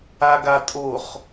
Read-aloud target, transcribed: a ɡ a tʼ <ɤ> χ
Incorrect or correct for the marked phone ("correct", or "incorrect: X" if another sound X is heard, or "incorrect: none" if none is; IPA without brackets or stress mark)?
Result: incorrect: o